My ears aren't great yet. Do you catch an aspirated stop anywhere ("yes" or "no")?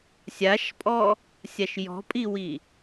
no